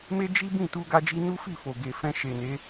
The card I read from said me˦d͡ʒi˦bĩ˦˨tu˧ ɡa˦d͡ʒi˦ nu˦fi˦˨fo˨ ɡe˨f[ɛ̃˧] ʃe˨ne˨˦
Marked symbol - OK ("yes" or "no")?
yes